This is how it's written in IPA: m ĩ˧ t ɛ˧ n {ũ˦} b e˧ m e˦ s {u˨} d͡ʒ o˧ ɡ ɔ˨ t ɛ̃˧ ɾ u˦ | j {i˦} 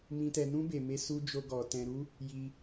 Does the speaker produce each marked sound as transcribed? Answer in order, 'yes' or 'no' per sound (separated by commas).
yes, no, no